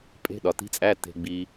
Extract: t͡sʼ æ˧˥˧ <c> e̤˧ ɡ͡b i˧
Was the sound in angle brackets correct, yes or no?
no